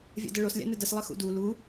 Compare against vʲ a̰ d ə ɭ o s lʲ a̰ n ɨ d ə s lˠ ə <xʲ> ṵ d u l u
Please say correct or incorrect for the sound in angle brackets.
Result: incorrect